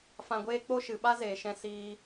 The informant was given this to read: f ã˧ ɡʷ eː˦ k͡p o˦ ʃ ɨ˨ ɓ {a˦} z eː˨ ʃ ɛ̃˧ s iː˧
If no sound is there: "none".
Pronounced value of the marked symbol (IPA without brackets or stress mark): a˦